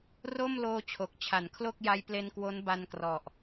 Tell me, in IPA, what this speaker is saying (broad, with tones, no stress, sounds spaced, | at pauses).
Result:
r o˥˩ m l oː˧ t͡ɕʰ o˨˩ k̚ t͡ɕʰ a˩˦ n kʰ l o˥˩ k̚ j a˦˥ j p l e˧ n k w o˦˥ n b a˧ n k r ɔ˨˩ ʔ